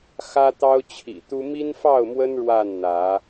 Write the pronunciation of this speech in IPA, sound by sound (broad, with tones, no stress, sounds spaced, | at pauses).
x ä˦ t̪ ɑ˦ ʊ̯ t͡ɕʰ ḭ˨˩ t̪ u˦ m i˦ n f ɑ˥˨ ʊ̯ m w ə˦ n ɻ w a˥˨ n n̪ ä˨˦